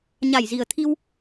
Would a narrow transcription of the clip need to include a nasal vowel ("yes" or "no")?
no